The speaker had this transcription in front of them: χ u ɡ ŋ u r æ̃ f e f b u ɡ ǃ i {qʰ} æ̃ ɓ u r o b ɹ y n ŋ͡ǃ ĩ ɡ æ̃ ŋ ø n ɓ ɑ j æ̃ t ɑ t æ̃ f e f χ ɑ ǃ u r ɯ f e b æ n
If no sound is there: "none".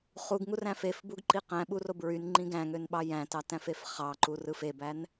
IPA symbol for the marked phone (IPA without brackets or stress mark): q